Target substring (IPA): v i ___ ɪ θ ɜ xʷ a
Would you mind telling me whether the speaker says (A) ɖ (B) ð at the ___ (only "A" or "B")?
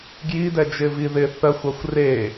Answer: B